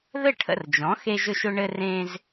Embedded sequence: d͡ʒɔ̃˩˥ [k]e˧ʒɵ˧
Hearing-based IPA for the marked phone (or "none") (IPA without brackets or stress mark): x